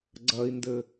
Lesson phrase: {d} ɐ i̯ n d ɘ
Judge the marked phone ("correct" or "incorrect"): incorrect